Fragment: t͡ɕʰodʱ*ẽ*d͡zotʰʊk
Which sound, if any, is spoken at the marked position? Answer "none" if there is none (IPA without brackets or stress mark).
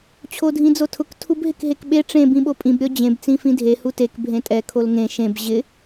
ĩ